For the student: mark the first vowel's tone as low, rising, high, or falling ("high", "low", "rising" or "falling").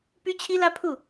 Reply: high